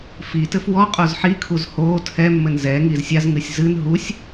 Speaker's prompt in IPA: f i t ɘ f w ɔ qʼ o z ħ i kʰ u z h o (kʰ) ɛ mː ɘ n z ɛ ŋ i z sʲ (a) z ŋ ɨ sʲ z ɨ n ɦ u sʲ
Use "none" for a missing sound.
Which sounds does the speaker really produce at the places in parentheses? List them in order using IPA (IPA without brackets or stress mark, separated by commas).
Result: tʰ, a